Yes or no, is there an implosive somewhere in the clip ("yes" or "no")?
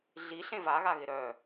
no